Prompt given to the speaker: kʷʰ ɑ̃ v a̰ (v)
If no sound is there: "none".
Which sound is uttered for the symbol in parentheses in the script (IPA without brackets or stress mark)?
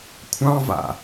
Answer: none